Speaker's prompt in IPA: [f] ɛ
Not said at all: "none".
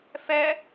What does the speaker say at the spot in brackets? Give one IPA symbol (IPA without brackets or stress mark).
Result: f